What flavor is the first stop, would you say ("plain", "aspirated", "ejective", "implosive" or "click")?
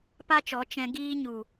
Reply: plain